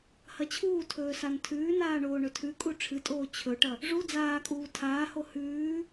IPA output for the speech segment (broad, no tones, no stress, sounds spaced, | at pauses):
h ɐ t͡ɕʰ uː tʰ ɵː s a n tʰ ʉː n aː ɳ oː ɳ ɵ tʰ ʉ kʼ u ʈ͡ʂʰ ɨ tʼ oː t͡ɕʰ ɵ ʈ ɐ | ʐ u d͡z aː kʼ uː tʰ aː h o h ʉː